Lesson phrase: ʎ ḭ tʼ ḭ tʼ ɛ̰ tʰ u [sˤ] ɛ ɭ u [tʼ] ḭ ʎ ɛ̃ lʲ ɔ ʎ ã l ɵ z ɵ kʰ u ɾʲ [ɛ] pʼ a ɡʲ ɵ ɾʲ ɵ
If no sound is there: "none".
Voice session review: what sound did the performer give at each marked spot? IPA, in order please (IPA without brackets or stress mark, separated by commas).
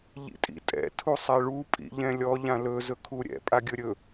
sˤ, pʼ, ɛ̰